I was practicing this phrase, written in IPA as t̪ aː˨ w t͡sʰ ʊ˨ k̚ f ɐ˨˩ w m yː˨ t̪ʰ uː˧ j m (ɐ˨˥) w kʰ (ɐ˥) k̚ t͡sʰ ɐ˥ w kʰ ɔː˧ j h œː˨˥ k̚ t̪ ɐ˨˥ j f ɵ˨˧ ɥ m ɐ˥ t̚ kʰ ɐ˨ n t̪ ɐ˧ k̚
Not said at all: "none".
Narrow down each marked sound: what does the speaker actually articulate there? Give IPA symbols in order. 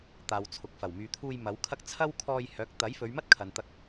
ɐ˨˥, ɐ˥

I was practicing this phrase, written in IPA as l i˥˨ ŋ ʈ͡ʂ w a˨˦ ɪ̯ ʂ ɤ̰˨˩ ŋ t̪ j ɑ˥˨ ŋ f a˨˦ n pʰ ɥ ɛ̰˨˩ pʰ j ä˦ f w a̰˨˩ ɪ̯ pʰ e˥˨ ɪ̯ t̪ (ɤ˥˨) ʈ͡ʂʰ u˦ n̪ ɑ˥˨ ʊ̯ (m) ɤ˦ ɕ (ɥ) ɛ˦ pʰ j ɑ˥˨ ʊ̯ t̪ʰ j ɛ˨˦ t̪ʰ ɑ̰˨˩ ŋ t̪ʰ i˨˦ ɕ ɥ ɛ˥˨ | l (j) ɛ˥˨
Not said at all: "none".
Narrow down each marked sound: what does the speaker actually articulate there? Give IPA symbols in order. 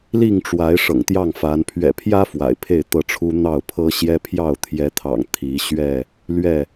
ɤ˥˨, pʰ, j, ɥ

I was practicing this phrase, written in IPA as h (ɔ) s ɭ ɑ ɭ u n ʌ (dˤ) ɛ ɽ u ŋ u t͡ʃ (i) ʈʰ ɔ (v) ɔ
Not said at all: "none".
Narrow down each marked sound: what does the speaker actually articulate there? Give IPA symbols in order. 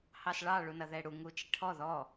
ɑ, ð, i, ð

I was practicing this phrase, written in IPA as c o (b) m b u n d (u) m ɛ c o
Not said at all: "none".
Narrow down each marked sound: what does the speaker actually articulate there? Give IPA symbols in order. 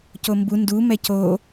none, u

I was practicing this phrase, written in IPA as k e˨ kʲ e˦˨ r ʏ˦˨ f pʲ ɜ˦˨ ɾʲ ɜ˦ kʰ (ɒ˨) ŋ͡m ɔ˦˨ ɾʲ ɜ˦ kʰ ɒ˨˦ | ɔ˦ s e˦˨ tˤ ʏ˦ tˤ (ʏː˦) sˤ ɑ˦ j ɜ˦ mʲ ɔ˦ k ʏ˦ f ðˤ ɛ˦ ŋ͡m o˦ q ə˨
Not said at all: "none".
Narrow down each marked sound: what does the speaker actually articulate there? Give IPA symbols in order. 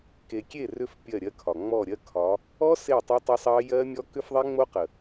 ɒ˨, ʏ˦

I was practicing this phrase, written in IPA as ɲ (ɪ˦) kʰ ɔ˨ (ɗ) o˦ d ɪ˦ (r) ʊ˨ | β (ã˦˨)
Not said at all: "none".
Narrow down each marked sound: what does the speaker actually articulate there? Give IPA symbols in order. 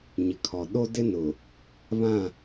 ɪ˨, ɗ, n, ã˦˨

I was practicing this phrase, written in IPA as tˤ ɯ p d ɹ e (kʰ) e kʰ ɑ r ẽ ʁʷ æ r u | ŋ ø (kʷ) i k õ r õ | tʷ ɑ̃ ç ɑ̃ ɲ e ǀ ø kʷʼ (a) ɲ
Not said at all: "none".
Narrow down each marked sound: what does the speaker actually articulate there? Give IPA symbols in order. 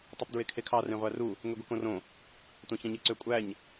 kʰ, ɡʷ, æ

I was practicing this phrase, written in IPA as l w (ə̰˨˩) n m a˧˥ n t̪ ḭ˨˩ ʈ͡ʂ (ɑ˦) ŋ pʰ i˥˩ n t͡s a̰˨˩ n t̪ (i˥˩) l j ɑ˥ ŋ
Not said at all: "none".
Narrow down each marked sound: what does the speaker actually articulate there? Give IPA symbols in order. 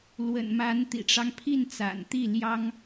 ə̰˨˩, ɑ˦, i˥˩

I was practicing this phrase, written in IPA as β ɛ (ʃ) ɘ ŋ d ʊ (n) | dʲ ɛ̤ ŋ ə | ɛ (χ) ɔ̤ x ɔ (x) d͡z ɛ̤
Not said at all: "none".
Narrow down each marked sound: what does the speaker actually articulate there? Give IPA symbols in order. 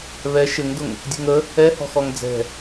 ʃ, ŋ, h, ŋ

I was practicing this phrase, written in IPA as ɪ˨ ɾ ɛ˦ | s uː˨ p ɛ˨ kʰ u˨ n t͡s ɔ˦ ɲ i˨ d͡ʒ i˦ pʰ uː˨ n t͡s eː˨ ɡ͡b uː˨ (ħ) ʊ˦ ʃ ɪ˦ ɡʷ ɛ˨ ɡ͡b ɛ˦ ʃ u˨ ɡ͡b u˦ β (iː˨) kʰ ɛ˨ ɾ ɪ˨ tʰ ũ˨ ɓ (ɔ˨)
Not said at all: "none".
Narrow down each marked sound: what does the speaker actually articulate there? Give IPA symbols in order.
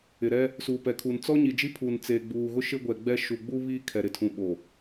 ɣ, iː˦, o˨

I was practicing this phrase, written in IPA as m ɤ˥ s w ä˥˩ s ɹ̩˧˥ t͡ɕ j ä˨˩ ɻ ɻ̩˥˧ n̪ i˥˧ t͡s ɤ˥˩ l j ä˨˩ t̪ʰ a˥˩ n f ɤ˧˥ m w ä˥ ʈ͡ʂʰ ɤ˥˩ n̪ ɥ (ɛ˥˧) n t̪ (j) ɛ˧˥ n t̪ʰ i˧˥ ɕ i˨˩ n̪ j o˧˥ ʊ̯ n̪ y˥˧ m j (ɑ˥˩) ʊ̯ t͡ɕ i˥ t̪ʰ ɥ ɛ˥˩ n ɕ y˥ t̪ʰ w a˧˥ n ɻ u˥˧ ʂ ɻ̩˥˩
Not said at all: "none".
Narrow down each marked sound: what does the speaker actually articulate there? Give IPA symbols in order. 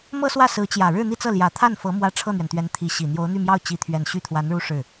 ɛ˩, ɥ, ɑ˥˩

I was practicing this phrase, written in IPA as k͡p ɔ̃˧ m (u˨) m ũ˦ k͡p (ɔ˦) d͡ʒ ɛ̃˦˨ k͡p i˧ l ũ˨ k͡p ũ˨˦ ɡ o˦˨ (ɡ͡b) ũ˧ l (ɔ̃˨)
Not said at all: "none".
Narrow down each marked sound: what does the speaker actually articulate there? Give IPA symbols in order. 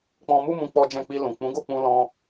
u˦, ɔ˦, k͡p, ɔ̃˦

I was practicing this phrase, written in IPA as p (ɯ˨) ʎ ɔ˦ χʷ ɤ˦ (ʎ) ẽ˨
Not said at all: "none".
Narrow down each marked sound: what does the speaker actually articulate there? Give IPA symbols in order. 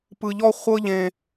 ɯ˨, ʎ

